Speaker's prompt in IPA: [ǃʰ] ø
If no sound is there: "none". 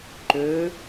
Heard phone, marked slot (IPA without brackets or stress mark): ǃ